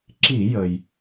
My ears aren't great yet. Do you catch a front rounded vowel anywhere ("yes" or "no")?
no